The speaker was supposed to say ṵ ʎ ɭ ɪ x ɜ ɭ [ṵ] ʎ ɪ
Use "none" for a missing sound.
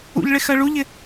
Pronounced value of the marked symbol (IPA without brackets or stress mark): u